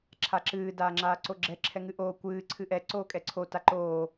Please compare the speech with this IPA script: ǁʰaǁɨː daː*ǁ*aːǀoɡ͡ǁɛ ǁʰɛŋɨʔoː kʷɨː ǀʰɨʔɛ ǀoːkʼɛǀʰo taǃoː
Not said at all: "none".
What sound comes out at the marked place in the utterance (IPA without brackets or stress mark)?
ŋ͡ǁ